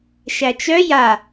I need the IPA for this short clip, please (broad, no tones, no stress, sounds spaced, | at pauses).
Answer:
ʃ æ t͡ʃ œ j a